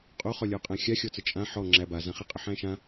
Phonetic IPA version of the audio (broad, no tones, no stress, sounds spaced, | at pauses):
qʼ o χ ɔ lʲ ɔ qʼ æ̃ xʲ a xʲ ɔ t͡s ə t͡ʃʼ ã ħ ɔ ŋ͡ǁ æ b a z ã χ i qʼ ə ħ æ̃ ʃ ã